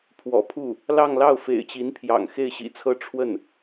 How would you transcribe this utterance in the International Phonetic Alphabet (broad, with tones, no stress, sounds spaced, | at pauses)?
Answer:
pʰ w ɔ̰˨˩ pʰ u˥˩ | l ɑ˥˧ ŋ l ɑ˥˩ ʊ̯ f ḛ˨˩ ɪ̯ t͡ɕ i˧˥ n pʰ j ɑ̰˨˩ ŋ x e˥˩ ɪ̯ ɕ ḭ˨˩ t͡sʰ ɤ˥ ʈ͡ʂʰ w ə˥˩ n